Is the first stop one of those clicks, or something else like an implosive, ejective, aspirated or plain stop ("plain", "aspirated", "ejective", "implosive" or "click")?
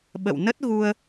implosive